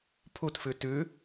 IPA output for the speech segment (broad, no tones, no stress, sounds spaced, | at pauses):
pʰ u t f ʉ t ʉ